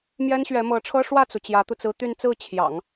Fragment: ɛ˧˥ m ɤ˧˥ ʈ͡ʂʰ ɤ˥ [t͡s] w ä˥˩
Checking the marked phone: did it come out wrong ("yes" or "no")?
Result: yes